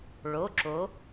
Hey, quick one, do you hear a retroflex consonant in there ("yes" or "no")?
yes